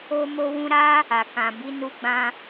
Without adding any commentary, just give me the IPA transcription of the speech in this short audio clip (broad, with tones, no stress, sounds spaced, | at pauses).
o˧ m o˧ w ũ˧ ɾ a˦ | a˨ k ã˨ b i˨˦ n u˧ ɡ͡b ã˧